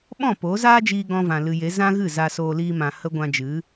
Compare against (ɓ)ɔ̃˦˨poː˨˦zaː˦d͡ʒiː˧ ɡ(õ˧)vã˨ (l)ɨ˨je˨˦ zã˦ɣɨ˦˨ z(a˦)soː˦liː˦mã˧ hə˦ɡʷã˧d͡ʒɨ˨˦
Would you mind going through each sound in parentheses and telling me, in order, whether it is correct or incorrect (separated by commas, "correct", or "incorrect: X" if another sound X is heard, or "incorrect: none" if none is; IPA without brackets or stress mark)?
correct, incorrect: ɔ̃˧, correct, correct